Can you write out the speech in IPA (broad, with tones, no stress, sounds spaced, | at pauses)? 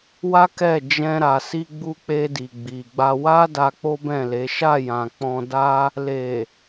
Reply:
w a˦ k ɛ˦˨ d͡ʒ ɛ̃˧ ɾ a˨ s i˧ ɡ͡b u˧ k͡p e˧ d i˨ ɡ͡b i˨ ɡ͡b a˧ w a˦ d a˧ k͡p o˦ b ɛ̃˦˨ l e˨˦ ʃ a˦˨ j ã˨ k͡p ɔ̃˧ d a˦ | l e˨